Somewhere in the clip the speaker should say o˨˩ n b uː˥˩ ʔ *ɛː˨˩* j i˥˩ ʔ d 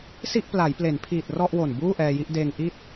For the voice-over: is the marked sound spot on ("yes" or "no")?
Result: no